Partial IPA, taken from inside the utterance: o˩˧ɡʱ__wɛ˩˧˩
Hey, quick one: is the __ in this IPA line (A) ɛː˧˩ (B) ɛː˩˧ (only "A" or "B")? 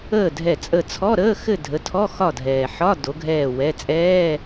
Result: A